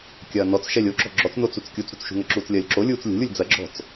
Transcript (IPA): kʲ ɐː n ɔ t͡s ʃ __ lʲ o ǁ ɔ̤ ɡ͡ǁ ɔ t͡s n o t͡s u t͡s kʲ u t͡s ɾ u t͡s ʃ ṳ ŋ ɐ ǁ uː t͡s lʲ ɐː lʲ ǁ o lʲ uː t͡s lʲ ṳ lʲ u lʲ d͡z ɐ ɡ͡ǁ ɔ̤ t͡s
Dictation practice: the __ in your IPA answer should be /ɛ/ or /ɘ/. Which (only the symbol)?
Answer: ɛ